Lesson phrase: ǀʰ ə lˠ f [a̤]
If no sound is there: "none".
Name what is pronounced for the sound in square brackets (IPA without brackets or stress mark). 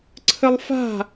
a̤